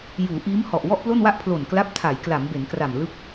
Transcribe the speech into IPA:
juː˩˦ʔiː˦˥mhɔ˨˩ʔ wɔ˥˩ʔplo˥˩nwa˥˩ʔ pʰlo˨˩nkla˦˥p̚ tʰa˩˦jkla˩˦mbe˩˦nkra˨˩m lɯ˥˩k̚

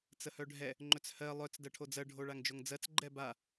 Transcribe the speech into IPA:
t͡səhœɖʱɛ | ŋ͡ǃɵt͡shɜ lˠœt͡s dɜʈʰod͡zɜ ɖʱoɭaŋd͡ʒoŋd͡zɜt͡s ɡ͡ǃɛba

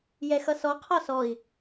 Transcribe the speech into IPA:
jɛxʌsɔ qʰɒsɔi̯

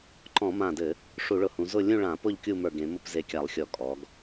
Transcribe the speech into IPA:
ǃɔ̃˧˩˧mã˧˩dɘ˧˩˧ | ʂu˧˩˧ɭʊ˧˩hũ˩˧zʊ˥˧ lʲũ˥˧ɭã˧˩˧pʊ˥˧ʎ kʲu˥˧mə˞˧˩ɡẽ˩˧ mʊ˥˧pze˧˩kʲa˧˩˧lˠxʲɔ˧˩˧ kʼɔ˩˧ɡ

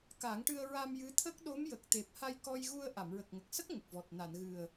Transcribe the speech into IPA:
ka˨˩˦ŋʈɨ˧ə̯ɹa˧m jɨ˧˥t̪ʰə˦˥k̚ ɗo˧˥mjə˨˩k̚t̪e˨˩p̚ ha˧jkɔ˧jɣu˧ə̯ ʔa˨˩˨mɹə˨˩k̚ŋə˨˩k̚sə˦˥k̚ ŋə˨˩k̚vɔ˨˩t̚ na˨˩˨nɣɨ˨˩ə̯

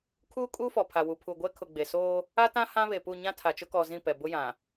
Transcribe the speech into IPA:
kʰuː˦ kʼuː˦fɔ˨pʰa˨wu˨ pʰu˨ɡʷɛ˦ kʰʊ˨ɡ͡be˨soː˦ | a˦tã˦ hã˦βe˨pu˦˨ ɲã˦tʰa˨t͡ʃʊ˦kɔ˨ zĩ˦˨pɛ˨ bʊ˦jã˨

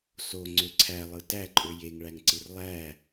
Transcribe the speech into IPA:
soŋ͡ǀø ǀʰælˠɯ tæǃʼø jeŋɭæŋǀɯr lˠæ

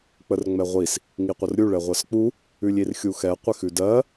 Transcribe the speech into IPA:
k͡pərŋ͡mɛʁʷis | ŋiqʷərɾʲu ɭɛʁʷɜsk͡pu | ʉlʲirxʲuxɛ qʷɪxʉdɜ

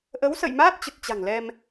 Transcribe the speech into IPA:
ʔə˨˦wsə̰˧˨jmaː˦˥t̚ t͡ɕə˨˩t̚t͡ɕa̤˨˩ŋlɛ˧m

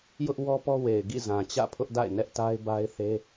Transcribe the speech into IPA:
jʊ˦ʔ wɔ˦pɔ˦ we˨ɪ̯ɡḭ˦˨zã˨ t͡ɕä̰˦˨pʰʊ˦ʔda̰˦˨ɪ̯ nɛ˦ʔta˦ɪ̯ ba˦ɪ̯ θe˦

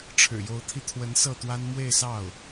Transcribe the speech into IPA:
ʈ͡ʂʰɻ̩˨˩jo˧˥ʊ̯t̪ʰi˧t̪ʰwə˧˥n sɤ˥˩t̪wa˥n mwe˥˧ɪ̯sɑ˥˩ʊ̯

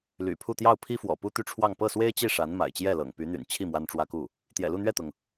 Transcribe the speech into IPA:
ly̰˨˩pʰu˥˧ t̪jɑ˥˩ʊ̯pʰi˥fwɔ̰˨˩ pu˥t̪y˥˧ʈ͡ʂʰwɑ˥˧ŋ pɤ˥˩swe˥ɪ̯t͡ɕi˥˩ ʂa˧˥nma̰˨˩ɪ̯t͡ɕjɛ˥˩lɤ̰˨˩ŋ py˧˥n̪y̰˨˩nt͡ɕʰi˥˩ mwa˥nʈ͡ʂwä˥ku˥˩ | t̪jɛ̰˨˩lu˥˧n̪ɥɛ˥˩t̪ʊ˩ŋ

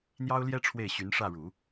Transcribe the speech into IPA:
n̪jɑ˥ʊ̯ljɛ˥ ʈ͡ʂʰwe˥˩ɪ̯ɕy˧˥n ʂä˥˩ɻu˨˩˦

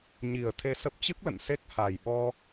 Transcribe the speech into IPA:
ɲi˨˩ə̯ t̪ʰe˧sə˦˥p̚ t͡ɕɨ˦˥k̚lə̰˧˨n se˦˥k̚ha˨˩jɓɔ˧

